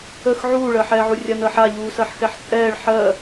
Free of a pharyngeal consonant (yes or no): no